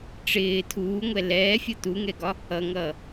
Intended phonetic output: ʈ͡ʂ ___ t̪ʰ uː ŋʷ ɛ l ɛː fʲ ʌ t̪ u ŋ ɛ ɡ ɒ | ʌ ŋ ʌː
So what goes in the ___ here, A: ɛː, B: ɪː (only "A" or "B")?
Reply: B